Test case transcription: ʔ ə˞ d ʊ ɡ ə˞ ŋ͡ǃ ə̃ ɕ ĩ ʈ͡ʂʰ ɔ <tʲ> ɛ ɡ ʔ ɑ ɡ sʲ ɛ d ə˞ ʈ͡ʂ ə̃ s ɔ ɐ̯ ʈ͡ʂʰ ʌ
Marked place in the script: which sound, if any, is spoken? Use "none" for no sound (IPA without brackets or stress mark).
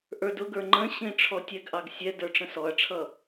tʲ